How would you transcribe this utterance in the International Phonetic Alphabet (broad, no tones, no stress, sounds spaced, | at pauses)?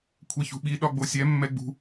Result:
kʷʰ ɛ ç ṳ ɓ i ɗ ɒ ɡ͡b o sʲ ɛ mː ɛ ɡ͡b ṳ